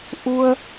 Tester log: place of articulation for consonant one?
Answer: glottal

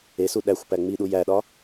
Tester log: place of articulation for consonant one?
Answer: alveolar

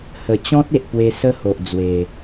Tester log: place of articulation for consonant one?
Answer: glottal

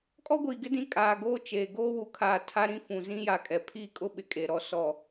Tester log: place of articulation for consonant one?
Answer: velar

